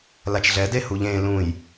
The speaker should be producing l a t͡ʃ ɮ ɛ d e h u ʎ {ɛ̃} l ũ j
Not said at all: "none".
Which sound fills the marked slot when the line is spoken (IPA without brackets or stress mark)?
ẽ